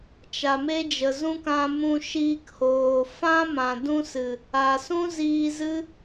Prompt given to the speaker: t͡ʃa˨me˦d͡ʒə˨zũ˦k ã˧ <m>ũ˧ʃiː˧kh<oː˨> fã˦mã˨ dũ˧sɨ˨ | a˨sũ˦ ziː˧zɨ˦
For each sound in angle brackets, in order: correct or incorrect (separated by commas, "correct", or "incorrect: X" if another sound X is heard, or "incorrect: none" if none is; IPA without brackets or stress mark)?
correct, correct